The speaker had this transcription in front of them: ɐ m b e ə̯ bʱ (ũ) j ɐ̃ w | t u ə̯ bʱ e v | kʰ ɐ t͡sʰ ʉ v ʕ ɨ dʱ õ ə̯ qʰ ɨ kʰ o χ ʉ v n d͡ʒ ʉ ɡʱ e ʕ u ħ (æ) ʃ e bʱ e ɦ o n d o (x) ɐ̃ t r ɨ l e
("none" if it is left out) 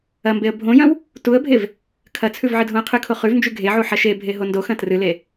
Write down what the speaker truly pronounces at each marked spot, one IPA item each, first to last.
õ, ɐ, x

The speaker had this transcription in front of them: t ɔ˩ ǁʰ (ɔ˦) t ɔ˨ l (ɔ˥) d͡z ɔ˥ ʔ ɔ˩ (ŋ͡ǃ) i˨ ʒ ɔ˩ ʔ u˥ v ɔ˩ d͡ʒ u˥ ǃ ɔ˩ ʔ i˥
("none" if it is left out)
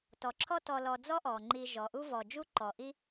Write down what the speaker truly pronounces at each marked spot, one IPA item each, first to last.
ɔ˦, ɔ˨, ŋ͡ǃ

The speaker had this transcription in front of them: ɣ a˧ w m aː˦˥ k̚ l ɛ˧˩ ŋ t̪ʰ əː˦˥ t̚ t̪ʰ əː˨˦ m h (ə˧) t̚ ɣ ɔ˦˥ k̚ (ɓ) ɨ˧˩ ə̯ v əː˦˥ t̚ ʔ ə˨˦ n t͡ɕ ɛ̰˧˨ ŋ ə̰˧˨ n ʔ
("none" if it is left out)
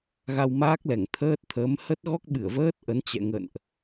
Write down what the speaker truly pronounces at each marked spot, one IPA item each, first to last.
ə˦˥, ɓ

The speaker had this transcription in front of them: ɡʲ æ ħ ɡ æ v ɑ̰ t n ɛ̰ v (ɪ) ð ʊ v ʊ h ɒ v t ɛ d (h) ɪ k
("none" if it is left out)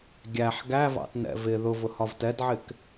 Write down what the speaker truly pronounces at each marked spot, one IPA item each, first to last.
ɪ, ʕ

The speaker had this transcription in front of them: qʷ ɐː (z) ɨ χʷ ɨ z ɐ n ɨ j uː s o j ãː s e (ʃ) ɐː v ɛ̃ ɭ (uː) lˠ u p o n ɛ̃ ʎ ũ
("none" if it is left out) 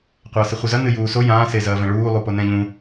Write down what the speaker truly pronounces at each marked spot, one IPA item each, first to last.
s, z, uː

